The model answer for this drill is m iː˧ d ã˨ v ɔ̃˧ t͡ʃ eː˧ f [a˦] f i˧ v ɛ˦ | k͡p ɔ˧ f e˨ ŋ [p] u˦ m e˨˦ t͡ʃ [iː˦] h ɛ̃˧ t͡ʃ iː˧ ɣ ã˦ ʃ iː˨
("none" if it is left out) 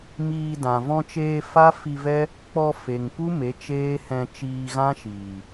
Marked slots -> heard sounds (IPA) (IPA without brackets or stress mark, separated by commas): a˦, p, eː˦